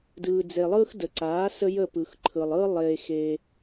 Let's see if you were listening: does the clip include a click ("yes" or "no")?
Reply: yes